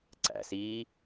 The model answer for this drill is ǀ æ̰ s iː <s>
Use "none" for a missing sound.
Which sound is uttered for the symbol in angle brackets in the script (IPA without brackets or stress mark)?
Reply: none